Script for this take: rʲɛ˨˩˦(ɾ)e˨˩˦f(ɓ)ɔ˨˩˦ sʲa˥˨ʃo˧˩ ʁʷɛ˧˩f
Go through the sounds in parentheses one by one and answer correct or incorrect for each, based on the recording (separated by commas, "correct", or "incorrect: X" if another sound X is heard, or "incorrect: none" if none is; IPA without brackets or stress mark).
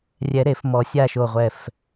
correct, incorrect: m